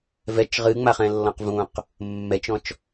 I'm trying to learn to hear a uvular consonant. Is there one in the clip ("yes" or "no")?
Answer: yes